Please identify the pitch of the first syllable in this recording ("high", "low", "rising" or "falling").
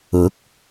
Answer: rising